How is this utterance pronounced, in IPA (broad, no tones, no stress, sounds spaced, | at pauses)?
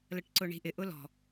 l ə ʈ ǀ ʊ ɳ i̤ ʔ ɪ ʔ ʊ l ɔ̤